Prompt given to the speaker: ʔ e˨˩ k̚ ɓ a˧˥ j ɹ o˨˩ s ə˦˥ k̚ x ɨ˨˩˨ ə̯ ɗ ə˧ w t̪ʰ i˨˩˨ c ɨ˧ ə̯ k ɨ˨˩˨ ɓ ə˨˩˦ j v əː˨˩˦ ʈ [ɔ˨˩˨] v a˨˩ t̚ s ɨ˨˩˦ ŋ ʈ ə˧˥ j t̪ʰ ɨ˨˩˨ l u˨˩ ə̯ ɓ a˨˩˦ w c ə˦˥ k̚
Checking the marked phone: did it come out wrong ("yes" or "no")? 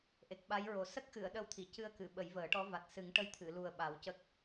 yes